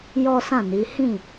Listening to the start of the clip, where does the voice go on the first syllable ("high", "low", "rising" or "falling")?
high